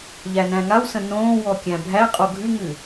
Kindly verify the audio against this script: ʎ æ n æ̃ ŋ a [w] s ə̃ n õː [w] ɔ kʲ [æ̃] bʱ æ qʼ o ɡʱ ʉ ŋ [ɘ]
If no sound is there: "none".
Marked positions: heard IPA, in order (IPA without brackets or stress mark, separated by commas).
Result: w, w, æ̃, ʉ